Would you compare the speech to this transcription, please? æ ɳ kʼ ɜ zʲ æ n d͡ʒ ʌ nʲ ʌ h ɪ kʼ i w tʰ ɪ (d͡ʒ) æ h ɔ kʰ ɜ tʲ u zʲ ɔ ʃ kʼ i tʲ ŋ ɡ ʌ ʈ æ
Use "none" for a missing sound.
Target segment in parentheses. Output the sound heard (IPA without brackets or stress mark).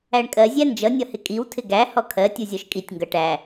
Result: ɡ